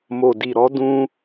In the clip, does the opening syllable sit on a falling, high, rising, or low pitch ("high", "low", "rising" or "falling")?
low